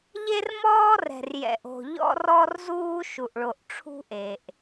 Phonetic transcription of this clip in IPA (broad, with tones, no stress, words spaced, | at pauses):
ʎe˦rmɔː˦rɛ̤˨r jɛ̰˨ʔo̤˨ ʎɔ̰˦rɔ˦rzuː˦ ʃu˨ʔɭo˨ʔ ʈ͡ʂʰṳ˦ʔe˨ʔ